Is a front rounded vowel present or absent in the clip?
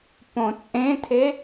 absent